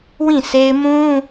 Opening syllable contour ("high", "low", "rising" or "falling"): falling